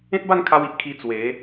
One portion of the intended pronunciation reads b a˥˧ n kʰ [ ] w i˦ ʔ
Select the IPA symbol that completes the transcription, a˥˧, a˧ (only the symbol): a˧